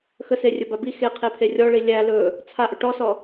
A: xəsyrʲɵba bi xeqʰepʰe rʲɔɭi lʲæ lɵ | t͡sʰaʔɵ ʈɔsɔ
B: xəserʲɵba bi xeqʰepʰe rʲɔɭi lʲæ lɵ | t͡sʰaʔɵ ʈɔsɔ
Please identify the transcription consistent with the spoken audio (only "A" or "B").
B